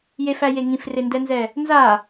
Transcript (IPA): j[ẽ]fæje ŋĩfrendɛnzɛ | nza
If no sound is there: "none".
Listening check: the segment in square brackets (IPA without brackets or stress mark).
e